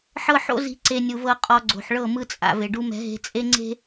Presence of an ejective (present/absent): present